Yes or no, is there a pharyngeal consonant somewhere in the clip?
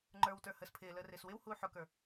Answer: yes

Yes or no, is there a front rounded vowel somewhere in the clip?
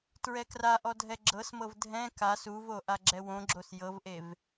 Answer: no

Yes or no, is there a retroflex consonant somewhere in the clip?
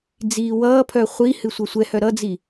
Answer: no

